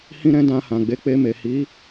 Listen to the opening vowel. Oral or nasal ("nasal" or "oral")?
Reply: nasal